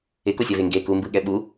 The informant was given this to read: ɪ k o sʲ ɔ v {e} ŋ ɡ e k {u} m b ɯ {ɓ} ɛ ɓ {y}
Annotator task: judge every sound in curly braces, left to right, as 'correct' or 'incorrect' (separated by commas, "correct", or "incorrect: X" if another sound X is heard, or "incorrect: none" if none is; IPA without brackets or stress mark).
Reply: correct, correct, incorrect: ɠ, incorrect: u